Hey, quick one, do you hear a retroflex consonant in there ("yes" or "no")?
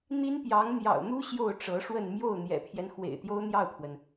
yes